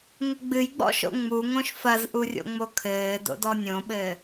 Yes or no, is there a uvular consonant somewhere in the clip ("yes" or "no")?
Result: no